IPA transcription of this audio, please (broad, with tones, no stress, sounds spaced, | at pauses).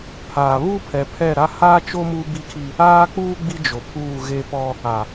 pʰ a˨ β u˦ pʰ ɛ˨ pʰ ɛ˦˨ ɾ a˦ h aː˦ t͡ʃ o˦ m uː˦ b i˦ kʰ i˦ | aː˦ k͡p uː˦ ɡ͡b i˦ d͡ʒ o˨ pʰ uː˦˨ ɣ e˦ p ɔ˦ | a˨